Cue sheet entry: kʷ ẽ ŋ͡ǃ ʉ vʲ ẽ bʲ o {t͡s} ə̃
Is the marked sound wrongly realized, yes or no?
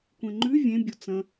no